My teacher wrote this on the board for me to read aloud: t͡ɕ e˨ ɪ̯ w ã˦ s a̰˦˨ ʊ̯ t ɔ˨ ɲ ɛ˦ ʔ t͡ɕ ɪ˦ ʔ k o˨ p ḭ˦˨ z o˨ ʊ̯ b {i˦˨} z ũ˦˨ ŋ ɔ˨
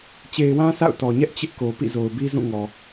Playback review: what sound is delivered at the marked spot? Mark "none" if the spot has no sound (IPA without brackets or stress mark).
i˦